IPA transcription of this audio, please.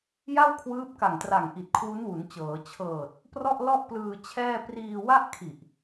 j a˥˩ w kʰ w ɯː˦˥ p̚ k a˨˩ ŋ t r a˨˩ ŋ ʔ i˨˩ t̚ kʰ w u˦˥ n w u˩˦ n t͡ɕ ɤː˩˦ t͡ɕʰ ɤː˨˩ t̚ | p r ɔ˥˩ ʔ l ɔ˥˩ ʔ p l ɯː˧ t͡ɕʰ ɛː˥˩ p r iː˧ w a˥˩ ʔ kʰ i˨˩ ʔ

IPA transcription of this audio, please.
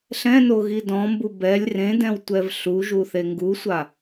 ɬ ɛ̃ n o ɣ i d ɔ̃ m b u b ɛ lʲ r ẽ d ɛ̃ w tʷ ɛ v ɬ u ʒ u θ e ŋ ɡ u sʷ a

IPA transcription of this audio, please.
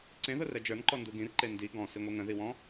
ǀ ẽ ð ʊ r ɛ d͡ʒ ə˞ n ǃ ɔ n d u ɡ ĩ r ǃ e n d i ɡ ɔ̃ s i ŋʷ ɛ ŋ ə̃ ð i w ɔ̃

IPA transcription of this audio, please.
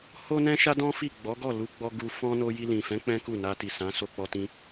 h o˦ n ɛ̃˦ ʃ a˦ d ɔ̃˦ f i˦˨ ɡ͡b ɔ˨˦ ɡ ɔ˦˨ l u˧ ɡ͡b ɔ˧ ɡ u˧ f ɔ̃˧ n o˧ j i˧ l ĩ˨ f ɛ̃˨˦ k͡p ɛ̃˦ k u˦˨ n a˧ t i˨ s ã˨˦ s o˧ k͡p ɔ˧ t ĩ˧

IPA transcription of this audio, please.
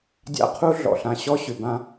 dʲ a̰˦ qʰ u˦ ɮ ɔ̰˨ ɬ ã˨ ɕ ɔ˦ ɕ ʏ˨ b ã˦

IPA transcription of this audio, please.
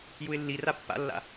j u ɪ̯ lː i r a pː a̰ lː a̰

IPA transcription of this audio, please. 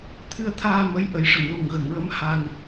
t̪ʰ ɨ˧ ə̯ t̪ʰ aː˧ m ə˧˥ j ʔ ə˨˩˦ j ʂ ə˨˩˨ ŋ l u˨˩ ŋ ɣ ə˨˩˨ ŋ ɹ ə˧˥ m h a˧ ŋ

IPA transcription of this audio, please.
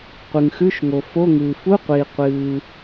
qʷ ɨ˩ ŋ x ʉ˧˥˧ ʃ ŋ o˩ f o˧˥˧ ŋ ɨː˩ f u˧˥˧ qʷ iː˩ qʷ ɨː˩

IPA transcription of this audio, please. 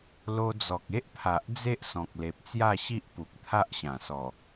l o˧ d͡z ɔ˨ k̚ e˦ ʔ pʰ a˨ ʔ d͡z e˦ ʔ s ɔ̃˨ k̚ l e˨ p̚ t͡s j a˥˧ ɕ i˦ ʔ p u˨ k̚ t̪ʰ a˦ ʔ ɕ ã˨˩ s ɔ˨˩

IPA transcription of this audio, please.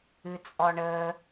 ɨ t͡sʼ ɔ ɳ əː

